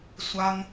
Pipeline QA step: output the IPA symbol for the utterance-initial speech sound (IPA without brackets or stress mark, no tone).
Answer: sʷ